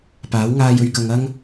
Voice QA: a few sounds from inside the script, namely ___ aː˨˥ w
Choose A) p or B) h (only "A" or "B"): A